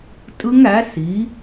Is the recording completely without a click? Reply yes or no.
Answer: yes